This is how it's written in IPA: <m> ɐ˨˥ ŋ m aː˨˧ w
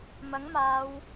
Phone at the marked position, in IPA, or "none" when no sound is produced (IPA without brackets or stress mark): m